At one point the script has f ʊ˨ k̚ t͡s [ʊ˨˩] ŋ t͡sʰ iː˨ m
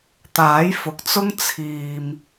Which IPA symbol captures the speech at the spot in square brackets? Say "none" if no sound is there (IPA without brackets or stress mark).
ʊ˥